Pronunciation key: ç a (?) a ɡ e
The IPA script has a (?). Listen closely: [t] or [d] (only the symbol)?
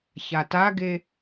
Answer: t